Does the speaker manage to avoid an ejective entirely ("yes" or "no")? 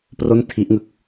yes